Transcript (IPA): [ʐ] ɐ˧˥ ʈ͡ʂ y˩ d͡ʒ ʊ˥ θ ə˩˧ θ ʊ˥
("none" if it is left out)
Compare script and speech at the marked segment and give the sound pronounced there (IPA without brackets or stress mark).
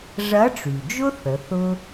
ʐ